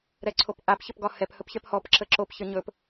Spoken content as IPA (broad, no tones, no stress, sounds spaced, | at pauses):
ɾ ɛ ǀʰ o p ʔ a p ç ə p ɡ ɒ h ɛ p h ɵ p ç ɛ p h ɔ p ǁ ə ǁ o p ç ə ɲ ɵ p